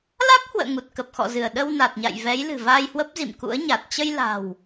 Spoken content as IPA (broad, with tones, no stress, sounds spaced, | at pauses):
l a˦˥ k̚ h w ə̰ː˧˨ ŋ u˨˩ t̚ k ə˨˩ p̚ x ɔ̰˧˨ z ɨ˧˩ ə̯ ɗ ə˧ w n a˨˩ t̚ ɲ a̰˧˨ j v ɛ˨˦ j l ɨ̤˨˩ v aː˧ j h w ə˦˥ p̚ z ḭ˧˨ m k ṵ˧˥ ə̯ ɲ a˨˩ t̚ t͡ɕ ə˧ j l a̤˨˩ w